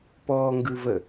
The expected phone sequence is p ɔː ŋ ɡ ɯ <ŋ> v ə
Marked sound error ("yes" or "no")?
yes